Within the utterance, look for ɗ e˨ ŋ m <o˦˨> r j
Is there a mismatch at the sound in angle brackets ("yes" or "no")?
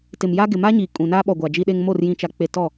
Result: no